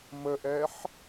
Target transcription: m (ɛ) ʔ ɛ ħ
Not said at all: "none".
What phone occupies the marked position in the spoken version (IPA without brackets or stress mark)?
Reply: ə